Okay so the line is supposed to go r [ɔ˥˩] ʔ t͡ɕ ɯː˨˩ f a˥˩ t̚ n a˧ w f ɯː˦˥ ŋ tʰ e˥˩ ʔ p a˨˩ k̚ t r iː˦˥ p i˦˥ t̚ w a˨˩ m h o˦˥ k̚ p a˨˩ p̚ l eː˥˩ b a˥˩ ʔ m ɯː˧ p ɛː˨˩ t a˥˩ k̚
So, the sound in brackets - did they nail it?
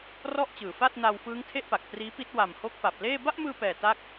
yes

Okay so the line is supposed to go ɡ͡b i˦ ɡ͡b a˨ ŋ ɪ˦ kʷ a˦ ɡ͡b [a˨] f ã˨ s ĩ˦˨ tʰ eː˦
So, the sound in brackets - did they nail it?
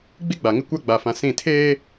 yes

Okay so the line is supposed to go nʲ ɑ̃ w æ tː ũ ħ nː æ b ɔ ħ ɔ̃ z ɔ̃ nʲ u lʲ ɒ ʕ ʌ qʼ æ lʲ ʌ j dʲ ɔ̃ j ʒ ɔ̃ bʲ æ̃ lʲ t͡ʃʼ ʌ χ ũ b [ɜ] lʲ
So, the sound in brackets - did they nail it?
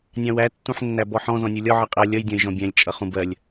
yes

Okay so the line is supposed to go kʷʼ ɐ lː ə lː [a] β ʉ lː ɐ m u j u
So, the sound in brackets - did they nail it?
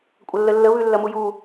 no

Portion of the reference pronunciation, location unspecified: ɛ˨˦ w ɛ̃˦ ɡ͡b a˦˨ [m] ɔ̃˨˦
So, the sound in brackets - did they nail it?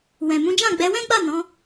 no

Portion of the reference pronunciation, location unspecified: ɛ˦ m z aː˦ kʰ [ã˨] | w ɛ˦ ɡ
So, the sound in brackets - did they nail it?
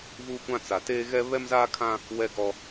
no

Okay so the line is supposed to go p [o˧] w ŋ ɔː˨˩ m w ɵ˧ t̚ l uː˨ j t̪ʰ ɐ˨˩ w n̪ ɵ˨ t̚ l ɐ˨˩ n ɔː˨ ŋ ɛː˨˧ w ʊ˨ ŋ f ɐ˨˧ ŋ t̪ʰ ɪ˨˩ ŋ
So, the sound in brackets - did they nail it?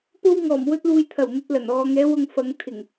yes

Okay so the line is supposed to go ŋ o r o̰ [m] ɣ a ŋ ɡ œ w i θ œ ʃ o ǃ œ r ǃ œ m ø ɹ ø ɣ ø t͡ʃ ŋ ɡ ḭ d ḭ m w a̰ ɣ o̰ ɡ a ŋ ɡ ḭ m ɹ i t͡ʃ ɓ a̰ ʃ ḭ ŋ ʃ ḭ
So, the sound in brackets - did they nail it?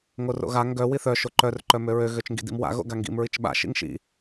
no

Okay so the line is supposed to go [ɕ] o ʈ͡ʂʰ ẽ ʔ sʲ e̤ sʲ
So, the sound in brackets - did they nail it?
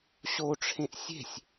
yes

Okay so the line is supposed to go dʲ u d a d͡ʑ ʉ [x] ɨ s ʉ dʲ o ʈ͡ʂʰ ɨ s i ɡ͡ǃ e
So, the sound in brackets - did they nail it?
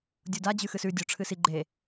yes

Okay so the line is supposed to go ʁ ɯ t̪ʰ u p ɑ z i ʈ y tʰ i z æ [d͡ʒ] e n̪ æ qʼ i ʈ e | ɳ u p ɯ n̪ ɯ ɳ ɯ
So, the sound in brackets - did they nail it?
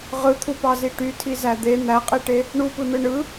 no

